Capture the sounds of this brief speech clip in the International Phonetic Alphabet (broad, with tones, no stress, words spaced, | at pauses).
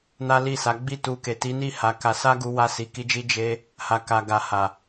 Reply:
na˦li˦˨ sa˨˦ ɡ͡bi˦˨tu˧ ke˨ti˨˦ ni˦˨ ha˧ka˧ sa˦ɡu˧wa˧ si˨ki˧d͡ʒi˧ d͡ʒe˧ | ha˨ka˨ ɡa˨ha˨